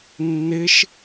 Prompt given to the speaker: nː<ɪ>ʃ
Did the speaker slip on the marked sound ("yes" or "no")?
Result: no